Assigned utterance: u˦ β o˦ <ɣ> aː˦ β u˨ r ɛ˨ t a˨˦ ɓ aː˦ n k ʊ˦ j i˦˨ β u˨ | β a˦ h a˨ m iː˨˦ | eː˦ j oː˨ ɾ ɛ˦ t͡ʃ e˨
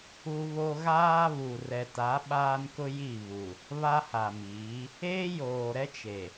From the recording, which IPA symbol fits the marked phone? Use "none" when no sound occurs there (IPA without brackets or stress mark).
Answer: ɣ